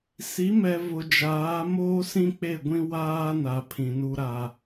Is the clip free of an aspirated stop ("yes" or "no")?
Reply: no